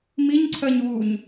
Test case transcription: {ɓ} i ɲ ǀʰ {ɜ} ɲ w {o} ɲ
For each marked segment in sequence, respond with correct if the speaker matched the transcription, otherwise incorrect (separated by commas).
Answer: incorrect, correct, incorrect